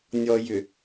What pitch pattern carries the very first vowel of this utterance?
low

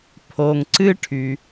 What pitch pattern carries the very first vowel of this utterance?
low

